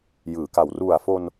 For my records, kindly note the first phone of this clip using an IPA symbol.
j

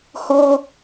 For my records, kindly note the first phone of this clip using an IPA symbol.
h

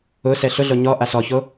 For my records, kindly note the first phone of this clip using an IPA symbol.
ʊ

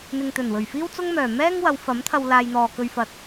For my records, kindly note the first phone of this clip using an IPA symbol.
n̪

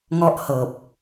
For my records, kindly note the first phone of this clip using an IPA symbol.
ŋ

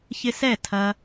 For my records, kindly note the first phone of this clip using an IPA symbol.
ç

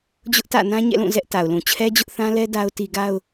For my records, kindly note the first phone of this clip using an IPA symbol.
d͡ʑ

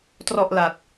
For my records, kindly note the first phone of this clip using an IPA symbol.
t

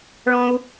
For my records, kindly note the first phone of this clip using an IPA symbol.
ɭ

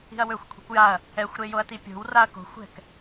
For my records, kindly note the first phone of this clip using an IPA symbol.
i̤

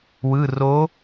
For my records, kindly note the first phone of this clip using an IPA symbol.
w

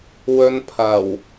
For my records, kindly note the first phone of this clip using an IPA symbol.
w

